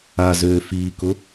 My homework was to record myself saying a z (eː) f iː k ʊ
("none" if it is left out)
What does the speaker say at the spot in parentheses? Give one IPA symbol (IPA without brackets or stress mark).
øː